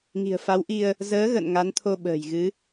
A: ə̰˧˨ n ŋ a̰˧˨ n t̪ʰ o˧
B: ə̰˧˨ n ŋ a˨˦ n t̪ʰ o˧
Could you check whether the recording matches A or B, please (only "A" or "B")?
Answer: B